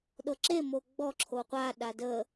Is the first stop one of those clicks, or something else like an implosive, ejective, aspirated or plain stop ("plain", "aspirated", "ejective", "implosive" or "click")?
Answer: implosive